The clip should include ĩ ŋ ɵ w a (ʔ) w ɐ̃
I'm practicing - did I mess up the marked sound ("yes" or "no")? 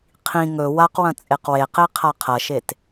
yes